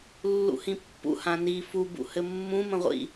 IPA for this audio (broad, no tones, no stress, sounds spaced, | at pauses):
lː ṵ h ĩ pː ṵ h ã n i f u b ṵ h ɘ mː ũ m ə̃ ʁʷ ḭ